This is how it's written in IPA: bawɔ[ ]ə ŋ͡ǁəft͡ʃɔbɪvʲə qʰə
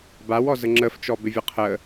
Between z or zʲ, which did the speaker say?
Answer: z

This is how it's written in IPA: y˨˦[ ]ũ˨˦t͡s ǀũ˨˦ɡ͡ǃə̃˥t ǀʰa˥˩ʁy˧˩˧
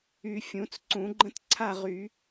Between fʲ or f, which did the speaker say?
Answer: fʲ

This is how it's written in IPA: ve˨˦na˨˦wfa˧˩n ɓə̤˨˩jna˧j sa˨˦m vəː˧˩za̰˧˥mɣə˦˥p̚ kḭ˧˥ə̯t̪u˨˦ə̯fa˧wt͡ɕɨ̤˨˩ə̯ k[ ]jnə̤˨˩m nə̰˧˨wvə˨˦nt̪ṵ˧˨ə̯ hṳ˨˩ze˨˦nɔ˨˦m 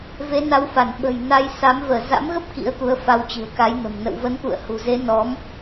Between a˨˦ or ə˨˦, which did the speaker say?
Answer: a˨˦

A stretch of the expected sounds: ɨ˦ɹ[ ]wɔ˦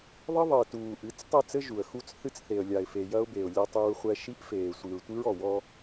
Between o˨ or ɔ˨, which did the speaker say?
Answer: ɔ˨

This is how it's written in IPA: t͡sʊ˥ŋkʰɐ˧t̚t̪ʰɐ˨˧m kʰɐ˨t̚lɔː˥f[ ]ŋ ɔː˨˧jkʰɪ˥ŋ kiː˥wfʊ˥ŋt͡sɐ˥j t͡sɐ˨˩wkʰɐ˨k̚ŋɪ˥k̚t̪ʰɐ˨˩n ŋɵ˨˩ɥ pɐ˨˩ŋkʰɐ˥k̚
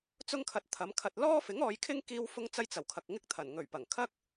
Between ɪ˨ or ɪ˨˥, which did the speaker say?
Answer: ɪ˨˥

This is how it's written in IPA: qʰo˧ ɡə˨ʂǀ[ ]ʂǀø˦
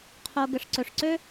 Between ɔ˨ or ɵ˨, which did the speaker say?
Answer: ɵ˨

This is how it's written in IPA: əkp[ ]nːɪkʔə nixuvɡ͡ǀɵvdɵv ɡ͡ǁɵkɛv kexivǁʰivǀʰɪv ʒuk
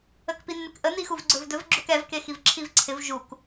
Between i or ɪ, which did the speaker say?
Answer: i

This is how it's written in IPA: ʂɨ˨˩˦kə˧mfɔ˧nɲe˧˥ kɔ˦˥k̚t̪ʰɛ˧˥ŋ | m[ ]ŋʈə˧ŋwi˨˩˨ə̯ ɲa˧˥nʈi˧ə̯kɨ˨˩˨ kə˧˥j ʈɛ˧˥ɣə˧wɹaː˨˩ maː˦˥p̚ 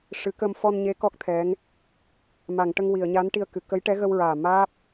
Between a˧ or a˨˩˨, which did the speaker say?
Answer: a˨˩˨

